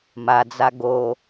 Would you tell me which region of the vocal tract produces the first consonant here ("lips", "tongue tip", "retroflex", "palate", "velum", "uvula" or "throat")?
lips